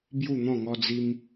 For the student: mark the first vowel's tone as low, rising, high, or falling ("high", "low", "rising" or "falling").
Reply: falling